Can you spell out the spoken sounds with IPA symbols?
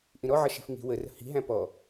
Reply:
ʔ ĩ ɾ ɔ ʕ ʌ ʃ i̤ f ŋ i̤ w ə r ə̤ h i̤ ɦ æ̃ p ɔ

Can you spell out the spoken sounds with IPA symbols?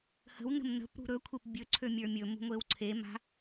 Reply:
h ə̤ w n ə̤ m n ə̤ p ɾ ṳ ɾ ɵ kʷʰ e p bʲ ɵ ǀʰ ø mʲ ə˞ mʲ ɵ m ṳ ŋʷ e w ǀʰ e m a̤

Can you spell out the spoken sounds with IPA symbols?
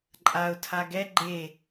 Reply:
ǃʼ a ʊ̯ tʰ a ɡ ɛ ɡ͡ǃ e

